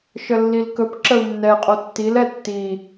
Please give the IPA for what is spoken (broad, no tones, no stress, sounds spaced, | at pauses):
ʃ ə lː i l k ɵ p ǁ ə u̯ nː ɛ qʼ o tː i l ɛ tː i